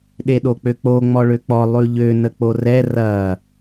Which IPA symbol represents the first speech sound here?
ɗ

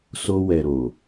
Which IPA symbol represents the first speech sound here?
s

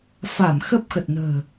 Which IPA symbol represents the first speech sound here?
f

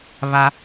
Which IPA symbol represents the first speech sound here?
β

